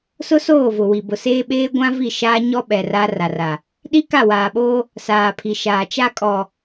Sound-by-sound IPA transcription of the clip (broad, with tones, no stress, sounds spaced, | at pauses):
s ʊ˦ s oː˦˨ v ʊ˨ w i˨ b ʊ˨ s eː˦ ɓ eː˦ ɡʷ ã˦ v i˦˨ ʃ aː˦ ɲ ɔ˦ ɓ ɛ˨ r a˦ r a˨ r a˨ | ɗ i˦ k a˦˨ w aː˨ ɓ oː˦ | s aː˨ pʰ i˨ ʃ aː˨ t͡ʃ a˦ kʼ ɔ˨